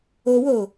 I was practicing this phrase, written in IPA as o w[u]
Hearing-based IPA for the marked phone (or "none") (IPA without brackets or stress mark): o